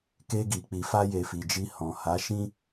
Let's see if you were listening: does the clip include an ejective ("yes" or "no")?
no